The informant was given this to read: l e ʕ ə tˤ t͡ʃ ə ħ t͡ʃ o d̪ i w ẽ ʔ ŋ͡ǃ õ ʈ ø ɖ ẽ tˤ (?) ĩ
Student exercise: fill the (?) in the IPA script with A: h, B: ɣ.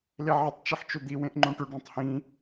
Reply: A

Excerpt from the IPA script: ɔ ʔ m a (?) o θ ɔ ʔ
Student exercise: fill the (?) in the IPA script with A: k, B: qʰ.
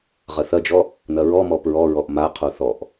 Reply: B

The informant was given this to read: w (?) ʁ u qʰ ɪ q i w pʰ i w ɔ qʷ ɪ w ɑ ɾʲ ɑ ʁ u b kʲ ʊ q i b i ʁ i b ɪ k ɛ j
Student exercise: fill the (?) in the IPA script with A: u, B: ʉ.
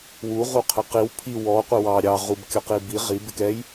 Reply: A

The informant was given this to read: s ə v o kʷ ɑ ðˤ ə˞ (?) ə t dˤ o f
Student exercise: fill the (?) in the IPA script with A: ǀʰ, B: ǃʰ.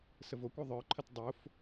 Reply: B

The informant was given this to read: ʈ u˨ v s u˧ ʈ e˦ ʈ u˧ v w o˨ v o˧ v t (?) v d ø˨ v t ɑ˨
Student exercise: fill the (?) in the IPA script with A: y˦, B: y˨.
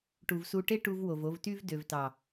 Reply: A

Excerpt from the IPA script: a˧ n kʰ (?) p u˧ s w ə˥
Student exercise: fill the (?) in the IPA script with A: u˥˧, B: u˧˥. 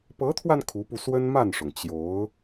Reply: B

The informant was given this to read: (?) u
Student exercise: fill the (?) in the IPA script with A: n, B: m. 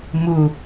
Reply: B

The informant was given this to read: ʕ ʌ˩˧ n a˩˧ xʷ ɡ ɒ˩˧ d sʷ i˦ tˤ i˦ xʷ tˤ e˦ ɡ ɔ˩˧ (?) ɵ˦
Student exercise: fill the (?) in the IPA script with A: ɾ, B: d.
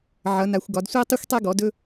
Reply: B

